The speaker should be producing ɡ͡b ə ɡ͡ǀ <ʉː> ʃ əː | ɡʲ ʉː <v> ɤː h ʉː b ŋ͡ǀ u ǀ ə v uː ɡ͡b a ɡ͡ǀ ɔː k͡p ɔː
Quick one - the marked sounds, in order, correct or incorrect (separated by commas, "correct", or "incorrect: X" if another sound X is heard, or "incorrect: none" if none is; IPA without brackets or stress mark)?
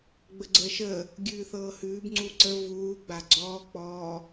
incorrect: əː, incorrect: θ